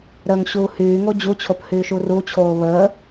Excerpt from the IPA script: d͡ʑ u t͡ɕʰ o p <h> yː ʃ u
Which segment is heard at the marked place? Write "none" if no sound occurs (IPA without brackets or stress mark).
h